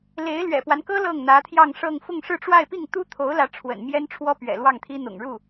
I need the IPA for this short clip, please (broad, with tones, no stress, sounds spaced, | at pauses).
l e˧˥ ɪ̯ l ɥ ɛ̰˨˩ p w a˦ n k ɤ˥ l ɤ˥˩ ŋ n̪ ä˧˥ t̪ʰ j ɑ˥˧ ŋ ʂ ɤ˥˧ ŋ f ʊ˥˧ ŋ ʂ ɻ̩˥˧ ʈ͡ʂ w a˥˧ ɪ̯ p i˥˩ ŋ t̪ u˥ t̪ʰ o˧˥ ʊ̯ l ä˧˥ ʈ͡ʂʰ w ə̰˨˩ n m j ɛ˥ n ʈ͡ʂʰ w ɔ˥ p ɥ ɛ̰˨˩ l w ɑ˥˩ ŋ t̪ʰ i˥ n̪ ʊ̰˨˩ ŋ ɻ u˥˩